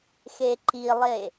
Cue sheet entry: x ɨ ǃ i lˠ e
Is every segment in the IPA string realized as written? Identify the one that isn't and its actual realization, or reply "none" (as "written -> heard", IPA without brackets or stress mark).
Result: ɨ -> e